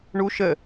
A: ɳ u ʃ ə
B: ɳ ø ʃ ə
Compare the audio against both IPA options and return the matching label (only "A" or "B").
A